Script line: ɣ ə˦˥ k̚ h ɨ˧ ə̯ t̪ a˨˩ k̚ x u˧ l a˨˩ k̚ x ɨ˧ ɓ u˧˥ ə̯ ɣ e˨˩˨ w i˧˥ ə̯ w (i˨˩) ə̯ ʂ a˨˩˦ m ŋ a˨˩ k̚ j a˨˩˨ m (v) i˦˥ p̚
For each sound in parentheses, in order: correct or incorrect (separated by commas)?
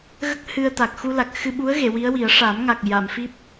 incorrect, incorrect